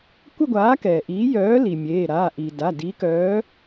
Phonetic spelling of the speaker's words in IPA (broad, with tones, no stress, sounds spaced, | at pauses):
kʷ ə˥˧ ɡʷ aː˨˥ k ɛː˩ ʔ iː˨˥ j œː˨˥ l i˩ mʲ eː˩˧˩ ɾ aː˩˧˩ ʔ iː˩ d a˩˧˩ d i˨˥ k œː˨˥